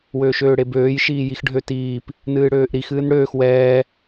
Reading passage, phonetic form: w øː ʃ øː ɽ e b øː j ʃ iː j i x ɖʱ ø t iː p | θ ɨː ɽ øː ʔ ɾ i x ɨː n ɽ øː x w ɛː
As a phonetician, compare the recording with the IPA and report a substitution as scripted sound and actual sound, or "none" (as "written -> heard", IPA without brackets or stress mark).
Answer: θ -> n